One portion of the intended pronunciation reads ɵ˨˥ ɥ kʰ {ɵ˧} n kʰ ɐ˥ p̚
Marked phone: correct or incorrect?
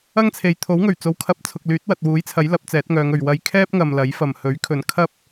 incorrect